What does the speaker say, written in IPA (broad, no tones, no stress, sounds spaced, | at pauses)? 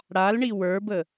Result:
ɽ a l ɳ i w ə˞ b ə